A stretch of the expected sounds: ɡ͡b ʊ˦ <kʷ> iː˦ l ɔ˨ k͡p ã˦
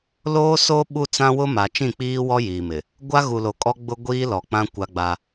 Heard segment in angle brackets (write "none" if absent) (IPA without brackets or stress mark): ɡʷ